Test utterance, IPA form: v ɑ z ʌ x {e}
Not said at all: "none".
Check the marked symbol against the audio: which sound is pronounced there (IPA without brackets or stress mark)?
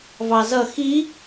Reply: i